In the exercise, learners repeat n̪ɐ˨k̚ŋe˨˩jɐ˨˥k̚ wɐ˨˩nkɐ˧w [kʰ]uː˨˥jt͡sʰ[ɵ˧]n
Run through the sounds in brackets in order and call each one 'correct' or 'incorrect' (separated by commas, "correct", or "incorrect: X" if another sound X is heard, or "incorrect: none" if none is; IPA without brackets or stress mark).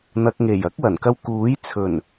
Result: incorrect: k, incorrect: ɵ˨˩